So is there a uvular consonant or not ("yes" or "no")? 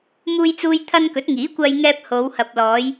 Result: no